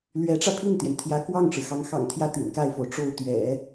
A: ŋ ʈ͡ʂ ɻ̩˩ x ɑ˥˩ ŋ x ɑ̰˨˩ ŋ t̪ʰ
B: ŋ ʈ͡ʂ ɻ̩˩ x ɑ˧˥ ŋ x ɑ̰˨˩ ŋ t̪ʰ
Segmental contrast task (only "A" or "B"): B